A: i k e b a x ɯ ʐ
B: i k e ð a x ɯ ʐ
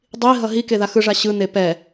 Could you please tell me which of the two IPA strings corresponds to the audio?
B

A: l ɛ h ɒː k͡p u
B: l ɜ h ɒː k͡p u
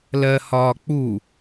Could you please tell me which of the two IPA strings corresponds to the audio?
B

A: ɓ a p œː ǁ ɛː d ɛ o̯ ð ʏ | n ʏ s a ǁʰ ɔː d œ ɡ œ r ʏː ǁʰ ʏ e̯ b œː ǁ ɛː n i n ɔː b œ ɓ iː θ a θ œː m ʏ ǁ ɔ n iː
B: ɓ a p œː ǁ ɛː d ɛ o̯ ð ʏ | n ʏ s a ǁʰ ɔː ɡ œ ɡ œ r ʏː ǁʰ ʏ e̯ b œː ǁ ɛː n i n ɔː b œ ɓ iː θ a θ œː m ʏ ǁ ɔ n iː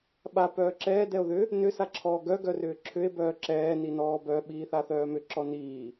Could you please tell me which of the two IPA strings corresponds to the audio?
B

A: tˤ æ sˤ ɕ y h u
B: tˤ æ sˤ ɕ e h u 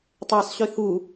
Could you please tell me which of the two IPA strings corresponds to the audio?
A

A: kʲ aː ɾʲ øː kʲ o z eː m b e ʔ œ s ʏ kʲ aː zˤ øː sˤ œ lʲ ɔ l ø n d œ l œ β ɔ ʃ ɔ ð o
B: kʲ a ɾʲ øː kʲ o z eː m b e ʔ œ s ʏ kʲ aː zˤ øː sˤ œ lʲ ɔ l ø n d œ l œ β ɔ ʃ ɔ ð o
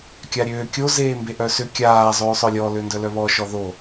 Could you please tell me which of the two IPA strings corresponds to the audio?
B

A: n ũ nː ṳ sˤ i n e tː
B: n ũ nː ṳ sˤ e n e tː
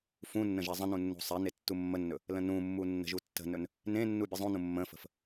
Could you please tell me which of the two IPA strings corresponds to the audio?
B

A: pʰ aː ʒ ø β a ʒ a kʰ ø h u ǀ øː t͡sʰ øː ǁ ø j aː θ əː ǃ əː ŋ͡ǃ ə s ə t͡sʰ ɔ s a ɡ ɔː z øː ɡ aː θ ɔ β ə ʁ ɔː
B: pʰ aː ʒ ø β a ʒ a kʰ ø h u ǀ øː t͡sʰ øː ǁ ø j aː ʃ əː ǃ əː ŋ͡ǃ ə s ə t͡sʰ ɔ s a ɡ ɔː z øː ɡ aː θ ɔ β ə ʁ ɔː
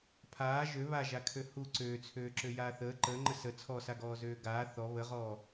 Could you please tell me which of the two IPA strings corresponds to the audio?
A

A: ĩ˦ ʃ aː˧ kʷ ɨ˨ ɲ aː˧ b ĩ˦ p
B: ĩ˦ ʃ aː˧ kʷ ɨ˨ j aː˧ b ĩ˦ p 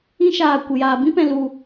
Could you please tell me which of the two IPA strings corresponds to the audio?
B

